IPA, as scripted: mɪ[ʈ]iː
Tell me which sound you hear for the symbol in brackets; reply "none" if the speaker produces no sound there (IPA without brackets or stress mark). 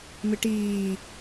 ʈ